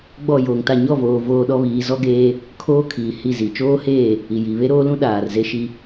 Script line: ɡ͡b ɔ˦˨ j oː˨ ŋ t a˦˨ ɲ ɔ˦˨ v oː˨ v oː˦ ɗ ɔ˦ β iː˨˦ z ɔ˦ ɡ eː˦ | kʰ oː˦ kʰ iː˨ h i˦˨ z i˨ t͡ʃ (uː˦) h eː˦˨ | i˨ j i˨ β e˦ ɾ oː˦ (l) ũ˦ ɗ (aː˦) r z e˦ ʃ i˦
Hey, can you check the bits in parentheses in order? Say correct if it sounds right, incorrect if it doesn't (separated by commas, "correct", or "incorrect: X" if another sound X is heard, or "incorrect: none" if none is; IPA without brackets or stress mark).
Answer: incorrect: oː˦, correct, incorrect: aː˨